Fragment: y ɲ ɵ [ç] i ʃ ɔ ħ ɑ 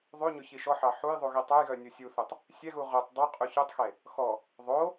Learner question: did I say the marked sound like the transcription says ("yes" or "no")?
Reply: yes